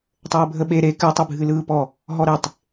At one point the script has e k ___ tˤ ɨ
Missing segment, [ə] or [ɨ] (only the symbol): ɨ